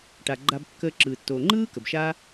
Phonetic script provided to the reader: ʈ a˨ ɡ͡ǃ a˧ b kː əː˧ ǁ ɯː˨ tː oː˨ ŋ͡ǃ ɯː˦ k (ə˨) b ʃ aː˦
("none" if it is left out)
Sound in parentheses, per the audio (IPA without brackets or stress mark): ə˨